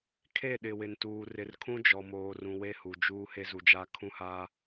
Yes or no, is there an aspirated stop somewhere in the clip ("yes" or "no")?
yes